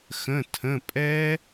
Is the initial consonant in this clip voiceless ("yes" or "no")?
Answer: yes